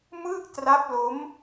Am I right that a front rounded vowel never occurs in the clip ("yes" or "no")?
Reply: yes